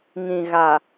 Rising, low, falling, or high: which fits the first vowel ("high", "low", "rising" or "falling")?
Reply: low